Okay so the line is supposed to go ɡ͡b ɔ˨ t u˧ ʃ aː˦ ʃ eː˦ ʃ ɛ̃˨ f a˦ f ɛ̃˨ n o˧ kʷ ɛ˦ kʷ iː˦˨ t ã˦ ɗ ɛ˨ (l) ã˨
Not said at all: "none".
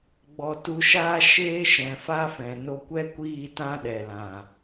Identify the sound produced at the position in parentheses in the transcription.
l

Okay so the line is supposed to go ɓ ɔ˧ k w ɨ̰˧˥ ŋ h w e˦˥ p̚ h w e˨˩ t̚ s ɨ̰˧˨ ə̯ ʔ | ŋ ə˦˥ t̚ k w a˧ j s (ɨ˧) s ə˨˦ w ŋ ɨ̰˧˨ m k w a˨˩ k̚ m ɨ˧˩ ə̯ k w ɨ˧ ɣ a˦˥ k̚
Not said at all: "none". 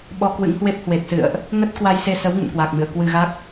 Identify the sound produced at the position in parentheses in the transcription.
e˧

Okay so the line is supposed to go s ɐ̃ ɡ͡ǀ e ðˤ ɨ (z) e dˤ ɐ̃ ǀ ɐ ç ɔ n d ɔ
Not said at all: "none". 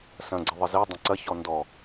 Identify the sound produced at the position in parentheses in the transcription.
z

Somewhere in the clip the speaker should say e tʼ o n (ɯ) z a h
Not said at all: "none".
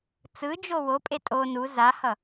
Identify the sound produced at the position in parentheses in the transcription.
u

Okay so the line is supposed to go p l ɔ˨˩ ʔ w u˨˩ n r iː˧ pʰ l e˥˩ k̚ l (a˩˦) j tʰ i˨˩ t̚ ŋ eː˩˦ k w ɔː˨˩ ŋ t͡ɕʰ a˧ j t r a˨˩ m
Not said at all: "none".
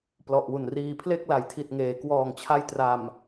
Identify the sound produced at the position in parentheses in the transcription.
a˩˦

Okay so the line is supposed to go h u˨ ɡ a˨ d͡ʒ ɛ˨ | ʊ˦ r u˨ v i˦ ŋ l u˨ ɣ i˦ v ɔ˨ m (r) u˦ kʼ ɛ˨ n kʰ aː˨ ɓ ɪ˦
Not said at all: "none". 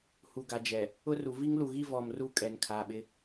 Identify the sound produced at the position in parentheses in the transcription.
r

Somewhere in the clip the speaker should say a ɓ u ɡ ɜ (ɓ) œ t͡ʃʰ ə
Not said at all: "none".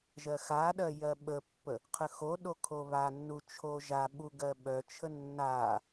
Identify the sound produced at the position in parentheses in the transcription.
ɓ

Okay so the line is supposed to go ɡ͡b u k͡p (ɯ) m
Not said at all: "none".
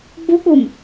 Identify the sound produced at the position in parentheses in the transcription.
u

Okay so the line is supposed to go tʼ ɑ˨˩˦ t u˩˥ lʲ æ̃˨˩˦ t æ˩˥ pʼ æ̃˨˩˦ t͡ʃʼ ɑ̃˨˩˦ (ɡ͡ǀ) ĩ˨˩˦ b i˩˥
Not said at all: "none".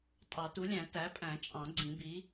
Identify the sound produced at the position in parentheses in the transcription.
ɡ͡ǀ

